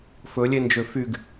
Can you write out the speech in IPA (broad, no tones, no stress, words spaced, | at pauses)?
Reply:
fɵlʲend͡ʒø fyɡ